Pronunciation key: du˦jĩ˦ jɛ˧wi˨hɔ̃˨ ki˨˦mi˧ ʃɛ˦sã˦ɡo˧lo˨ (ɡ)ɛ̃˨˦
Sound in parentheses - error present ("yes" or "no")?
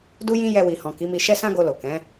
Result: yes